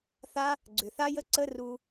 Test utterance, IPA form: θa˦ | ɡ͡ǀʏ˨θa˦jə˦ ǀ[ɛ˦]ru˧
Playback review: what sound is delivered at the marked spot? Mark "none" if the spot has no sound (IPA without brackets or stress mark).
ə˦